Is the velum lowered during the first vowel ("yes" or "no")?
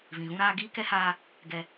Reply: yes